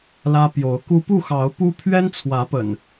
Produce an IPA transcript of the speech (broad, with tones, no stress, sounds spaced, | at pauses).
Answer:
l ä˦ p j o˨˦ ʊ̯ k u˦ p u˥˨ x ɑ˨˦ ʊ̯ p u˦ pʰ ɥ ɛ˦ n t͡sʰ w ä˨˦ p ə̰˨˩ n